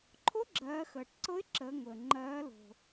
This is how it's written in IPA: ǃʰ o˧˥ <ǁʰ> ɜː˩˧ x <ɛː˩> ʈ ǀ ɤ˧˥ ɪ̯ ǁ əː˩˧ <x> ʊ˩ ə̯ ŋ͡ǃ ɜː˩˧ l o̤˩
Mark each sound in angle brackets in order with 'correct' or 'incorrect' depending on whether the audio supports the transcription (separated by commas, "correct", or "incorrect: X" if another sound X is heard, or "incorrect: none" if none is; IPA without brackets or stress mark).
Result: incorrect: ɡ͡ǁ, incorrect: əː˩, incorrect: ŋ